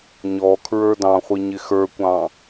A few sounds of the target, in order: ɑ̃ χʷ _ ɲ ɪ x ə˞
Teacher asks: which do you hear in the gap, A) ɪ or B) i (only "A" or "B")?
B